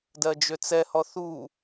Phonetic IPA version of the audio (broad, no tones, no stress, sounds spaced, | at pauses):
d ɜ d͡ʒ ø t͡s ɛ h ɔ θ u